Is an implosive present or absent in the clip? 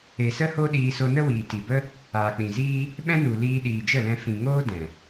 present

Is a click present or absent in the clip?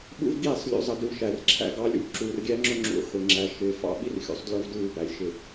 present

